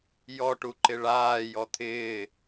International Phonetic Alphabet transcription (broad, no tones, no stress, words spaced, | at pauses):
jɔʈu ǃɪɭaːjɔ t̪ʰɪː